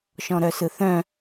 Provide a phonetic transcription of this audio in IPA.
ʃ ɔ̃ ɾ œ s ɯ θ œ̃

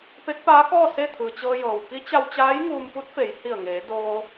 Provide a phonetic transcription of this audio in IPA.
p e˧˥ k̚ p aː˧˥ k ɔː˥˨ s e˥˨ t̪ʰ ɯː˩ t͡ɕ ɤː˧ j ɤː˩ w k i˧˥ t͡ɕ a˧ w t͡ɕ aː˧˥ j ŋ uː˧ m p u˧˥ t̚ f e˩˧ j h i˧˩ ə̯ ŋ eː˩˧ d oː˧

